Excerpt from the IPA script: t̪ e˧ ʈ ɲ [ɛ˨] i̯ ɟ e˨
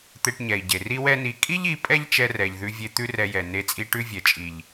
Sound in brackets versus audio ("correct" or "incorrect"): correct